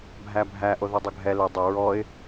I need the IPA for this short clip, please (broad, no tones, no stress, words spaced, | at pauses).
bʱæbʱæ ʔoðudˤʊɡʱɛ lɘ dˤɘ ɹɔɪ̯